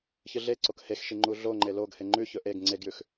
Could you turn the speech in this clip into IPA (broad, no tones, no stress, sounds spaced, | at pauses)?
ç ɨ ɮ e ǀ o k h e x ʃ i ŋ͡ǃ u ɮ o ŋ͡ǃ e l o ɡ h e ŋ͡ǃ ʉ ç ɵ ʔ e ɡ ŋ͡ǀ e ɡ j ʉ x